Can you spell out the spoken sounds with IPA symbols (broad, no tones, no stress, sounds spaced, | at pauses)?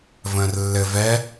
v ə̃ː r lː ɘ v ɛ